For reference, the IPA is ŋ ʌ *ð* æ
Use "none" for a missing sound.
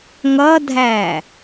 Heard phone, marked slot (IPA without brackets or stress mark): dʱ